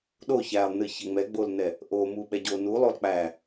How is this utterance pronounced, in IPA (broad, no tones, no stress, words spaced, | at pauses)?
ɗo çælˠnɨ çɛŋ͡mɛɡ͡bolnɛ | ʔomu ɓɛɟonu lˠolˠk͡pæ